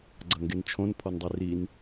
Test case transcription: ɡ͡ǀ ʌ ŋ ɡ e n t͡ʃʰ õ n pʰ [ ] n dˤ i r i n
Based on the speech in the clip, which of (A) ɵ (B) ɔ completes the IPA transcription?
B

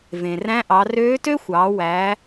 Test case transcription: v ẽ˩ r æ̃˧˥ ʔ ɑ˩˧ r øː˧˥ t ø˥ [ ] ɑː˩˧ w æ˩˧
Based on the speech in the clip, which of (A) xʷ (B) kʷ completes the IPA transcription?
A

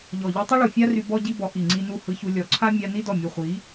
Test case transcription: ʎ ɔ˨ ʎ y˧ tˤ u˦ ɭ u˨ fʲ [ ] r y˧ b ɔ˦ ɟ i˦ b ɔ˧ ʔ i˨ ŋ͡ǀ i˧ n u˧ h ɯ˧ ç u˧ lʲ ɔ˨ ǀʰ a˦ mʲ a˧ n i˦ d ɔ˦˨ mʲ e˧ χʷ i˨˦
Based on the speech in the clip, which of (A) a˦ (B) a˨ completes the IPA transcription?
A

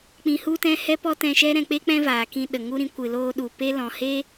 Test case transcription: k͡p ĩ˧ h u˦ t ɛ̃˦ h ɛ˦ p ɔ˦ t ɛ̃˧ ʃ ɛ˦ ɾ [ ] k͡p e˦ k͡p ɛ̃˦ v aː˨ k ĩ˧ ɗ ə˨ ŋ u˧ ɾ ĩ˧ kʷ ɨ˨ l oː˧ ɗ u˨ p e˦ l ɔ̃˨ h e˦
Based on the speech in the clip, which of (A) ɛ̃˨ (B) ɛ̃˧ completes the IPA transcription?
B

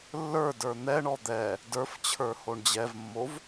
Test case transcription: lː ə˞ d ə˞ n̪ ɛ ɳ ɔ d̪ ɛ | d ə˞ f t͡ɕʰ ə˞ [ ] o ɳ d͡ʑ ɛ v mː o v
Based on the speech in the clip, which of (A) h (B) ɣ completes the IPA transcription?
A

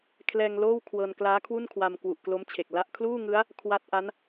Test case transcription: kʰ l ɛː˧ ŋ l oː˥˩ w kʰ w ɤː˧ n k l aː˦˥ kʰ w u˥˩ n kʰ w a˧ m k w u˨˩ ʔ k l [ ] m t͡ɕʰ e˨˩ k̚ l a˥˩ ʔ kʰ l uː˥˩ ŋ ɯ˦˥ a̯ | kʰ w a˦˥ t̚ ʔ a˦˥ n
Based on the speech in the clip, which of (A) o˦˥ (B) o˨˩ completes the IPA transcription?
A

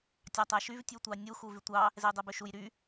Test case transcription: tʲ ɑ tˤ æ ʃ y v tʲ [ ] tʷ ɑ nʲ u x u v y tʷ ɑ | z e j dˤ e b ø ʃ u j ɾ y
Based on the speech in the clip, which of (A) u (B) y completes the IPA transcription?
A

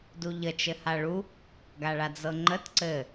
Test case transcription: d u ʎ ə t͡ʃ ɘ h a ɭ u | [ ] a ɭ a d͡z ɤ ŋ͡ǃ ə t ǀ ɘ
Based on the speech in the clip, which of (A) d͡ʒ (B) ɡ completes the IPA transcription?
B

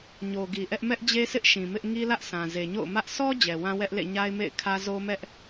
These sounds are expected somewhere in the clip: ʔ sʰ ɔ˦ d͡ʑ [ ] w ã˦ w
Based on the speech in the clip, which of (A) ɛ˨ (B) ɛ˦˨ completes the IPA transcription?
A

